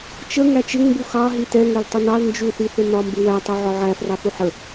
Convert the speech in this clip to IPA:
t͡ʃəŋæ t͡ʃɪŋmbu xɑ ɦitɛ ŋɛltˤʊnɑl nd͡ʒuθiθɪ nɒmbɪwætˤɛ ʕɒʕæ frɑθuħə

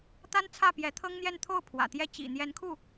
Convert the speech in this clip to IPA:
t̪a˥n t͡sʰä˥˩pjɛ˧˥t̪ʰɤ˥ŋn̪jɛ˥˧n t̪ʰo˥˩ʊ̯ pʰwä̰˨˩t̪jɛ˥ t͡ɕḭ˨˩ n̪jɛ˧˥nkʰu˥˩

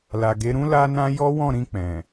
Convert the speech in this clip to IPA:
la˨ɡe˨˦ɾũ˦ la˦nã˦ jɔ˦wɔ̃˦˨ɾĩ˧k͡pɛ̃˨

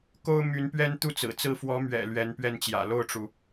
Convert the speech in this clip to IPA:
ko˥ʊ̯my˧˥npɥɛ˥n t̪u˥˩t͡sɹ̩˨˩ t͡sɹ̩˥˩ fwɔ˧˥mɥɛ̰˨˩ lɥɛ˧˥npɥɛ˥˩nt͡ɕjä̰˨˩ lo˥˩ʊ̯ʈ͡ʂu˩

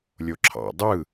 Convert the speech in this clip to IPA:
lʲoǁʰɑ̰ dˤɯ

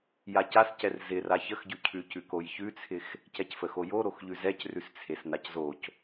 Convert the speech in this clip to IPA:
jacascɛr zɪra çəxɟʉcʰʉcʉ kojçʉt͡sʰɪx | cɛcfəxojo ɾoxʎʉzɛc rʉst͡sʰesnaczoc

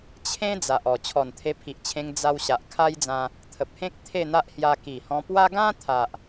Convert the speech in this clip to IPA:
t͡ɕʰẽ˦ d͡za˨ʔɔ˨˩ t͡ɕʰɔ˨˩nt̪ʰe˧pʰi˨ʔt͡ɕʰẽ˧ŋ d͡za˧w ɕa˨ʔkʰa˦jd͡zã˧ | t̪ʰə˨p̚hẽ˦k̚ t̪ʰe˥˧n̪a˦ʔhja˧ ki˨˩hɔ̃˧pwa˦ ɡã˦t̪ʰa˨ʔ

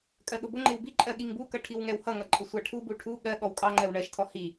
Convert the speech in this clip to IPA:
kʼɜɠʊbʊŋ͡ǃɪw biǃʼɜ ɠiŋbukʌ ʈʰiwŋɛwhʌŋʌ ǃʼəsʷɑʈʰubu ʈʰu ɠɜ ɠɔwkʼɑŋ͡ǃɜw ɳɜʃtʰɔ hi

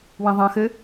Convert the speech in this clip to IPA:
wĩðˤɐ̃ xɘ

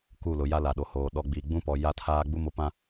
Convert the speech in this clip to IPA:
ku˦˨lʊ˨ ja˦la˨ɗo˨hoː˨ ɗɔ˨ ɡ͡bi˨ ɡ͡bũ˦pɔ˨ ja˦tʰaː˦ ɡ͡bu˦mo˨˦pã˦

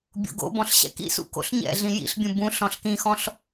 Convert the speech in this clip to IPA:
bʲo̰ɡo̰bɔ̃ɬ ɕɛ̰kḭsṵ ko̰ɬɲɛ̰ɮĩ jḭɬbʲũ bũ ɬɔ̃ɬkĩxɔ̃ɬ

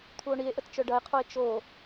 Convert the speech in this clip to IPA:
t̪ʰuo̯ɳie̯ʔət t͡ʃœɖɐe̯qʰoe̯ t͡ʃo

